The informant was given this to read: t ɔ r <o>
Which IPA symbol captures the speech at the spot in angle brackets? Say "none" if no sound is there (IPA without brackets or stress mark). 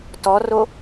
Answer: o